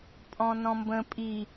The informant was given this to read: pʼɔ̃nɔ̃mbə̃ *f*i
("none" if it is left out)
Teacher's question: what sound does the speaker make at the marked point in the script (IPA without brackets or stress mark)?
pʼ